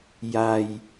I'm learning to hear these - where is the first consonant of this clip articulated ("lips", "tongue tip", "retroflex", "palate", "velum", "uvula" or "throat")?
palate